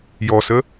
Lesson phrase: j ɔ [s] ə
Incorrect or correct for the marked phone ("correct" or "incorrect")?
correct